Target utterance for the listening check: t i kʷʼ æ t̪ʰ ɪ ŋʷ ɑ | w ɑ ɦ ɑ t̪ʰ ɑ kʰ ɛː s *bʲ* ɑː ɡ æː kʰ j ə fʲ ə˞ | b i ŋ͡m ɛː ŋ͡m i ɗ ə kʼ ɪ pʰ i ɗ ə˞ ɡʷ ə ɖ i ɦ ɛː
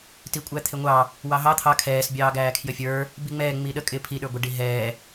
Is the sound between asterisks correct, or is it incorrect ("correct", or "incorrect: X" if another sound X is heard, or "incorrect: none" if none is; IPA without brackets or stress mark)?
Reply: correct